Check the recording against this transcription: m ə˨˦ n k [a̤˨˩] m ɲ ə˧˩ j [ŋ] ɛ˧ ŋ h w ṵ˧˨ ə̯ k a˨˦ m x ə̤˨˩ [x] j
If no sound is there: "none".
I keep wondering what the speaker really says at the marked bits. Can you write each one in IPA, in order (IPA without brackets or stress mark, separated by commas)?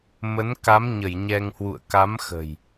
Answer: a˨˦, ɲ, none